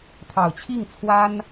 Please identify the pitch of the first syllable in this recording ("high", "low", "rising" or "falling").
low